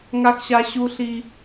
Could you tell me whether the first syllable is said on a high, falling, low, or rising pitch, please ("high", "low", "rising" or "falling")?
high